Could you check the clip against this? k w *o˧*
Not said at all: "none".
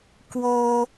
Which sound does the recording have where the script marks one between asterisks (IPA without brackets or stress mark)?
o˧